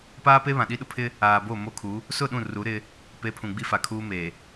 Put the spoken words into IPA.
p aː˦ p e˦ β ã˨ ɗ i˦ ɗ ʊ˦ pʰ ɪ˦ | aː˨ b o˦˨ m o˦ kʰ u˨˦ | s ʊ˦˨ ɗ ũ˦˨ r u˨˦ ɾ ɪ˦ | p e˨˦ pʰ ũ˨ ɡ͡b i˦ f a˨ kʰ uː˦ m eː˨

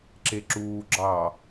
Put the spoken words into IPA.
ǁ e ǁ uː ɡ͡ǁ ɑː

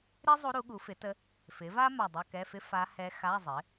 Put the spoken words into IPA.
ɾ i˥ zˤ u˧˥ ɾ u˩˥ ɠ u˩˥ f ɪ˩˥ t ə˧˥ | f ɪ˩˥ v a˥ m a˧˩ dˤ ə˧˥˧ k ɛ˧˥˧ f ɪ˥ f a˧˥ h ɛ˧˥ x a˧˥˧ zˤ ɪ˩˥

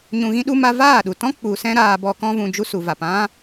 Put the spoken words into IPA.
ɲ ũ˧ ɣ ĩ˦ ɗ u˦ m a˦ v aː˦˨ ɗ u˨ t ɔ̃˦ k͡p u˨ s ɛ̃˦ ɾ aː˧ b ɔ˧ k ɔ̃˦ v ũ˧ d͡ʒ u˦ s u˨ v a˨ p ã˦

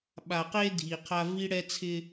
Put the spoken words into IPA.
ɓ a˨ q e˦ dʱ i˨ qʰ a˦ v i˦ ɽ ɛ˦ t͡sʰ ɪ˦

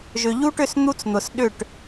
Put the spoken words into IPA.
ʒ ʏ˨ ʎ u˦ ʈ ʏ˦˨ s n̪ u˦ t͡s n̪ ʊ˨ s ɗ ʏ˦˨ ʈ

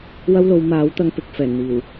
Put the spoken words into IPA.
w ɐ˥ w l o˨˧ w m aː˨˥ w t̪ ɐ˧ ŋ p ɪ˨ k̚ f ɛː˨˩ n n̪ iː˨˩ w

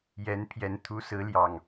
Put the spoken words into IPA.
j ɛ˨˦ n pʰ j ɛ˨˦ n t̪ʰ u˨˦ s ɹ̩˨˦ l j ɑ˨˩ ŋ

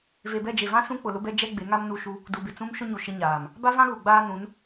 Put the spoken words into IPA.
v e˨ b ɛ˦˨ d͡ʒ e˨ v ã˦ s ũ˦ k͡p ʊ˨ l ʊ˦ b ɛ˦ d͡ʒ ɛ˦ ɡ͡b e˨˦ ŋ a˦ m n u˦˨ ʃ u˦ | d u˨ b ɪ˨ t͡s ũ˦ m ʃ ʊ˦ ɲ u˨ ʃ ɪ˦ ɲ aː˨ m | b a˦ v ã˦ ɣ u˨ ɡ͡b aː˦ n ũ˨˦ n

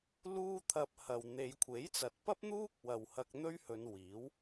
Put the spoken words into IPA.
l uː˥ t̪ʰ ɐ˧ p̚ h ɐ˨ w n̪ e˨˧ j kʷʰ e˨˥ j t͡s ɐ˨ t̚ p ɐ˥ p̚ n̪ uː˥ k̚ w ɐ˨ w h ɐ˧ k̚ n̪ ɵ˥ ɥ h ɵ˨˧ n w iː˨˥ w

